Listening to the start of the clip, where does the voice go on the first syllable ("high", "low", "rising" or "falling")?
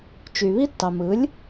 low